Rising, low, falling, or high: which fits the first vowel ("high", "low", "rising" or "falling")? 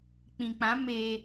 low